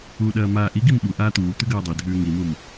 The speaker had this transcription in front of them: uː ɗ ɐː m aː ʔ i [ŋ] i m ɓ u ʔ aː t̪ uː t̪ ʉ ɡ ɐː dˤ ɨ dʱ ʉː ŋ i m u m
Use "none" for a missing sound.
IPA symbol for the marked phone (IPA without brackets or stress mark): ɡ